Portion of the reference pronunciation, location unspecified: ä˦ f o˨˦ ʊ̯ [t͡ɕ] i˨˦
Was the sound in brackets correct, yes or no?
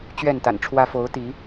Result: no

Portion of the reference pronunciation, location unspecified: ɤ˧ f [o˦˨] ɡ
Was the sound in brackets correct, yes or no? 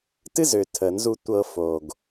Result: no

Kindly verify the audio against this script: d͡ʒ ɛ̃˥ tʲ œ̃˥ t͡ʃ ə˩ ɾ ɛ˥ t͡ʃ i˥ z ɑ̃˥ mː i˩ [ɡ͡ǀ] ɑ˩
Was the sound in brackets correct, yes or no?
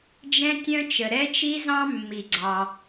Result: yes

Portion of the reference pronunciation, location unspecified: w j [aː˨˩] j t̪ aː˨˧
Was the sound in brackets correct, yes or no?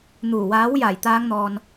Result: yes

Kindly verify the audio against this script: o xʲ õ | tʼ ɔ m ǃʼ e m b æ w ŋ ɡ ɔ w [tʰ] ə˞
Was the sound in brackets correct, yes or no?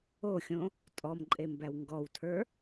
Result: yes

